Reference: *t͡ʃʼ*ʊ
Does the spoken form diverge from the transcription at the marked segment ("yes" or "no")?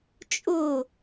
no